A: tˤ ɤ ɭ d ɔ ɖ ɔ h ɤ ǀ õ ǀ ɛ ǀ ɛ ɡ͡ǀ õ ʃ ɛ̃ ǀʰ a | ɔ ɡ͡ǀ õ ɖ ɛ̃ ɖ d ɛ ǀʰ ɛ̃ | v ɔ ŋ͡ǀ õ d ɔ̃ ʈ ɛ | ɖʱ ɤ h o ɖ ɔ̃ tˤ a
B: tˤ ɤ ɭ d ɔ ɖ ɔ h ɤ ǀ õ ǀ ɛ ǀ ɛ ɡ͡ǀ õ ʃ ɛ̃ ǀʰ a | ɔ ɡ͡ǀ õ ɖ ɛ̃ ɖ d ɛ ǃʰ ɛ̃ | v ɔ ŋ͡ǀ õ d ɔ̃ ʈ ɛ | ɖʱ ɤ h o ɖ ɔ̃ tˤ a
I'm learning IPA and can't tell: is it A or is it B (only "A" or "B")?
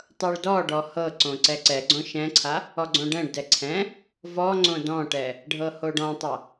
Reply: A